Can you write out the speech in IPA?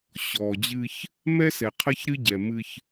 ɕɔː˨d͡ʑɨː˦ç | mɛ˦sɛ˨ qʰɐ˦çɾɨ˦ɟɛ˨ mɨ˦ç

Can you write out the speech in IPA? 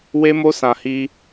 we˦mo˦sã˧ hi˦

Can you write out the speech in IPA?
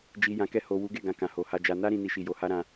d͡ʒi˨ jã˨kɛ˧ ho˨ wu˨˦ɡe˦˨ɡã˧ kã˨ho˨ha˧d͡ʒa˧ na˦ɾĩ˧ ni˦ʃi˦˨ jo˧ha˦ɾã˧

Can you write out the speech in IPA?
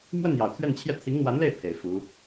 mwə˥˩n jɑ˨˩ʊ̯t̪ʰɥɛ˥˧nt͡ɕʰjɛ˥˩ t̪ʰi˧˥ŋn̪wa˧˥nle˥˩ɪ̯ pʰe˨˩ɪ̯fu˧˥

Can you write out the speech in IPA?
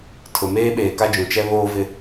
tʰʊ˨meː˦ ɓeː˨ka˦d͡ʒũ˨t͡ʃɛ˦ βoː˦vɪ˦

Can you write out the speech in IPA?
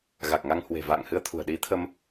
ɣa˨˩k̚ŋa˧ŋhwe̤˨˩ va̰ː˧˨ŋhɨ˧ə̯t̪ʰṳ˨˩ə̯ ɗi˨˦t̪ʰə˧m

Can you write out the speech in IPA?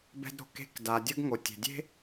bɛ̤˥dɾo̤˩ke̤˥k da˩dʲə˥ɡŋo˩ tʲe̤˩dʲe̤˥

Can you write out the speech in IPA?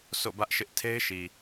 so̰˦˨bä˦ʔʃɪ˦ʔ tʰe˦ɪ̯ʃi˨

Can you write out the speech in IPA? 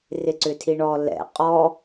rɪǀʏtʰiɳɔ lɛ̰ qʼɔ

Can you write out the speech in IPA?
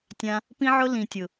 tʲã˧ | pĩ˦ʕʊ˦ lĩ˨tʲʊ˨

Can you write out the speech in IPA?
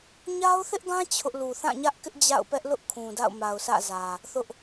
ɲa˦ʊ̯θɪ˦ʔɡã˦ t͡ɕʰʊ˦ʔ lu˨θã˦˨ɲä˦ʔkɪ˦ʔ d͡ʑa̰˦˨ʊ̯pɛ˦ʔlʊ˦ʔ kʰũ˨da̰˦˨ʊ̯ma˨ʊ̯sä̰˦˨ zä˨ | θʊ˦ʔ

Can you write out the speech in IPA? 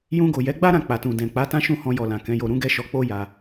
jũ˧ɡo˨jɛ˨˦ɡ͡ba˦ ɾã˦˨k͡pa˨tũ˨ dɛ̃˨k͡pa˨˦ tã˦ʃũ˦˨hɔ̃˧jɔ˨ lã˨kɛ̃˨˦jo˧ ɾũ˦ɡɛ˦ʃɔ˧k͡po˦ ja˧

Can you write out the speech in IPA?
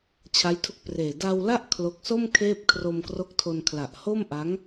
t͡ɕʰa˦˥jtʰu˦˥k̚preː˨˩ da˧wla˥˩ʔ kʰlo˦˥k̚ so˥˩m kʰeː˥˩p̚ kʰro˧mkro˦˥k̚tʰo˧n kʰla˨˩ʔho˥˩mʔa˦˥ŋ

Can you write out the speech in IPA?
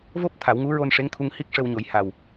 vo˦˥p̚ t̪ʰa˨˩˦wŋu˧˥ ɹo˧n ʂe˧˥ŋt̪ʰu˧ŋ hi˦˥k̚ʂə˧wɲo˨˩˦j ha˨˩w

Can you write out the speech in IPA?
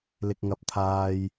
lɪ˥k̚ŋɐ˥p̚t̪ʰaː˥j

